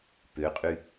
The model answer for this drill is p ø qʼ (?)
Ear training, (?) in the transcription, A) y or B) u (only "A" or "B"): A